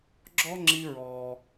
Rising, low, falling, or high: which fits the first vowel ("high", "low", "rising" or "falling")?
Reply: high